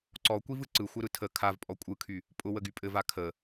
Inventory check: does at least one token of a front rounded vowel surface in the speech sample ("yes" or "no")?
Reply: yes